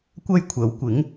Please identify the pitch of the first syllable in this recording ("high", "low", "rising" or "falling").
high